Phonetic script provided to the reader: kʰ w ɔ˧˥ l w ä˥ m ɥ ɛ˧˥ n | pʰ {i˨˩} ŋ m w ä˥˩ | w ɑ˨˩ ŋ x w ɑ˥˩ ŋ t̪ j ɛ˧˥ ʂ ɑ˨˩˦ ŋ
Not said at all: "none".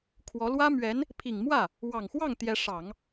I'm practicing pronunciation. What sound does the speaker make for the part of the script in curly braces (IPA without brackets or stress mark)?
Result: i˨˩